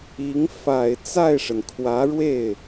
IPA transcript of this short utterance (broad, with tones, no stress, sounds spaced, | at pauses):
i˧˥ ŋ f a˨˩ ɪ̯ t͡s a˥˩ ɪ̯ ʂ ə˩ n kʰ w ä˧˥ ɻ w e˥˩ ɪ̯